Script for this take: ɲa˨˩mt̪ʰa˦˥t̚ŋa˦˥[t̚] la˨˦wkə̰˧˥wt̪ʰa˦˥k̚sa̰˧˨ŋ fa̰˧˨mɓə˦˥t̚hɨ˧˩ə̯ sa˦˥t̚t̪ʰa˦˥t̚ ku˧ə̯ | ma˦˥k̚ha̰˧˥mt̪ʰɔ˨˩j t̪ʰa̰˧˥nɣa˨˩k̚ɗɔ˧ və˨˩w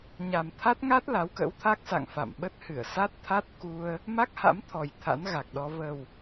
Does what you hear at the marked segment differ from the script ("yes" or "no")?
no